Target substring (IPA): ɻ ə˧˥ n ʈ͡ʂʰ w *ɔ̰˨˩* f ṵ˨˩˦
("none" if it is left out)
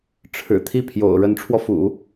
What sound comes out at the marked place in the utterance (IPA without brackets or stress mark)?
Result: ɔ˧